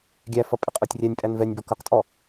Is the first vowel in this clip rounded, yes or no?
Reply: no